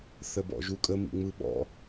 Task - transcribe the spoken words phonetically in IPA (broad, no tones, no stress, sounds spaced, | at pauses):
θ ə b ɔ̰ ʒ u kʼ ə m ḭ ŋ͡m ɯ ɓ ɔ̰